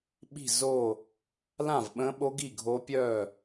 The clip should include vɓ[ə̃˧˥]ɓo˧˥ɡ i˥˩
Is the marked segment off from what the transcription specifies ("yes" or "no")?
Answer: no